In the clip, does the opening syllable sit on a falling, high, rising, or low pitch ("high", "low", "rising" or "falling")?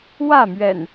falling